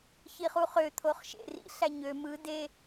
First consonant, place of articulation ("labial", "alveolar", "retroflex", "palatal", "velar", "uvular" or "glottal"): palatal